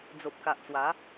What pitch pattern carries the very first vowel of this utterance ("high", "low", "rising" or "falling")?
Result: low